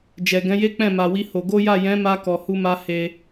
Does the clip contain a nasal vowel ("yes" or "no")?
yes